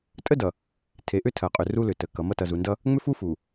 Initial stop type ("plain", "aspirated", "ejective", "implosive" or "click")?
ejective